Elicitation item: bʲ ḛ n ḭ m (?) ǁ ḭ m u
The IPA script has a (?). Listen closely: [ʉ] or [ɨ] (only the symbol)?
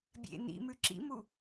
ʉ